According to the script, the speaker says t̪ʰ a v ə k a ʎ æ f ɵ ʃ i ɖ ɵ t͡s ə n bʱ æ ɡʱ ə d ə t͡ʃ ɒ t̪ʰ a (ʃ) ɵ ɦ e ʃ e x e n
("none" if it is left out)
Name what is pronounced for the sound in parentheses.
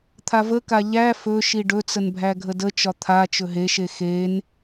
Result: t͡ʃ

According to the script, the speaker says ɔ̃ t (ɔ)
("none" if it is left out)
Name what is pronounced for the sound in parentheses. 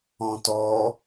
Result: ɔ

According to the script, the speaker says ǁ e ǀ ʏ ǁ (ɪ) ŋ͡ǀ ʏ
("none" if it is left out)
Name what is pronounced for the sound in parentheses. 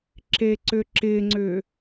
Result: ɪ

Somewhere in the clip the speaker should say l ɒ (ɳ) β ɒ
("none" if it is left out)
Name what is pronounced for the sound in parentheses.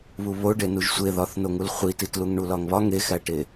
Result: ŋ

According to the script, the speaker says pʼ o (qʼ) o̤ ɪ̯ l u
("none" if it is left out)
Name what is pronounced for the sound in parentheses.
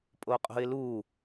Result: qʼ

